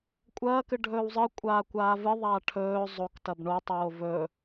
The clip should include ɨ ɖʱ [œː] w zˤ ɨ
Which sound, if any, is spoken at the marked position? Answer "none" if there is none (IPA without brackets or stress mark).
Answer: ɵː